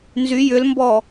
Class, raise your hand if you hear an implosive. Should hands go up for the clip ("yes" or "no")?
no